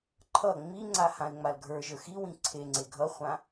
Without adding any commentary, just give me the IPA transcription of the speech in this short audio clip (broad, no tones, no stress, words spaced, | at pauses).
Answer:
ǃʰʌ ŋ͡miŋ͡ǀa hãe̯ŋ͡malɡʱə˞ʒə˞ xiwĩ ǀʰeŋ͡ǀe ɡʱʌχʷã